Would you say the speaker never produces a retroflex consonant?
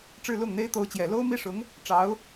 no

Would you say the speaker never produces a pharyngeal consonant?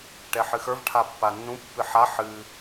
no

